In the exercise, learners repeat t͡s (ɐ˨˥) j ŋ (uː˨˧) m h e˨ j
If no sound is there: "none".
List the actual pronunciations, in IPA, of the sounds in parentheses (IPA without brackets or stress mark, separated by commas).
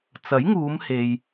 ɐ˨˥, uː˨˧